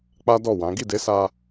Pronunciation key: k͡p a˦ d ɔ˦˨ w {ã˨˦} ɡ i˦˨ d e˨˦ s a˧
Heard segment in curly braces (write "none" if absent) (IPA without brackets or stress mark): ã˨˦